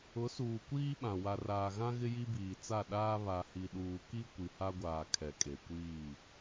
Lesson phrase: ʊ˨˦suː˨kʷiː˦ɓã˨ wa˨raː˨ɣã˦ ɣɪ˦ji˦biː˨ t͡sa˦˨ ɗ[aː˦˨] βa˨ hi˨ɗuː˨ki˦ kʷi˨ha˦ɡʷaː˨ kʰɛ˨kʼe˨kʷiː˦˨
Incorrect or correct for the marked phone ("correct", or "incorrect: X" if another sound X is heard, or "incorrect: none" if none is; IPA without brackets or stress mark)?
incorrect: aː˦